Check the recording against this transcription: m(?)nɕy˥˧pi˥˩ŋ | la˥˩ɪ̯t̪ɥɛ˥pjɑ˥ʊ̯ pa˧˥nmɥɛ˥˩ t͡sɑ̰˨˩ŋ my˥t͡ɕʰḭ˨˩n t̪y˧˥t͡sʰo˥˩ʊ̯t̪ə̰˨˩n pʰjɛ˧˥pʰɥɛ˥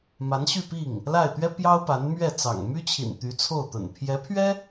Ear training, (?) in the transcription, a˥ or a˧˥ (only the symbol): a˧˥